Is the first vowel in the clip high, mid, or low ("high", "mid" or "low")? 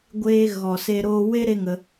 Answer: mid